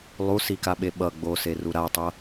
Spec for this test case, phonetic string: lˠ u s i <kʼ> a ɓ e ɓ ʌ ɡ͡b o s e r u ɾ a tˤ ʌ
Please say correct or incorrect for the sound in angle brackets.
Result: incorrect